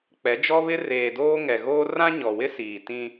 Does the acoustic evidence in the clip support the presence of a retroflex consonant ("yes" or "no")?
no